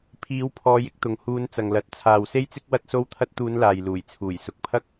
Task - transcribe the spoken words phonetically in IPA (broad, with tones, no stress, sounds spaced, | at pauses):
pʰ iː˨˧ w pʰ ɔː˨˧ j ɪ˧ k̚ t̪ ʊ˨ ŋ h uː˧ n t͡s ɐ˨ ŋ l ɐ˨˥ t̚ t͡sʰ aː˨ w s e˥ j t͡s ɪ˥ k̚ w ɐ˥ t̚ s o˥ w t̪ʰ ɐ˧ t̚ t̪ uː˨˧ n l aː˨ j l uː˨˩ j t͡sʰ uː˨˩ j s ʊ˨ k̚ pʰ ɐ˥ k̚